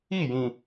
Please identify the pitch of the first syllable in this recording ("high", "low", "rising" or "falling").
falling